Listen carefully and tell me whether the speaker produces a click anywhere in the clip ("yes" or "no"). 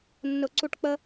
yes